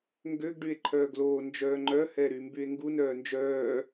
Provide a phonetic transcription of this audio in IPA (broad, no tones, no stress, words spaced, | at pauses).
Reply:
ŋɡøɡ ɖye̯ǃʰœːɡloː nd͡ʒœːŋ͡ǃœ hɛɾymbye̯ŋɡu nœːnd͡ʒœː